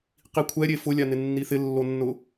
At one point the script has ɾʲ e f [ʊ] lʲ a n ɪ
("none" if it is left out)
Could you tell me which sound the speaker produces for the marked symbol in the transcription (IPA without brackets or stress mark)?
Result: ʊ